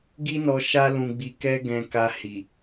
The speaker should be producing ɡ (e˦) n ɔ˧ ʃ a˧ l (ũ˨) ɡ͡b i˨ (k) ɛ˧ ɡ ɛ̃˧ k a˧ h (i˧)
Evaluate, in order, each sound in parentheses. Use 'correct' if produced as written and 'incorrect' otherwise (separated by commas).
incorrect, correct, correct, incorrect